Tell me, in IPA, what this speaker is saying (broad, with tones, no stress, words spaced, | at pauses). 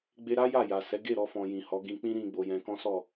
ɡ͡be˧ɾa˦ ja˦˨ja˨sɛ˨˦ ɡe˦˨ɾɔ˧fɔ̃˨ jĩ˨hɔ˨˦ ɡĩ˧ k͡pĩ˦ɾĩ˧ ɡ͡bo˨jɛ̃˧kɔ̃˦sɔ˦˨